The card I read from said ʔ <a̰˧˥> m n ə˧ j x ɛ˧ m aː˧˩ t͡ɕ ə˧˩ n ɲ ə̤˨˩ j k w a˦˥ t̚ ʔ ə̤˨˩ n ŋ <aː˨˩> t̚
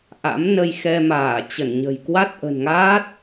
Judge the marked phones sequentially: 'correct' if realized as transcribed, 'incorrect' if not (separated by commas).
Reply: correct, incorrect